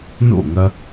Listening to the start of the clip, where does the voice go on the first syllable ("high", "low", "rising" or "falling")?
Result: falling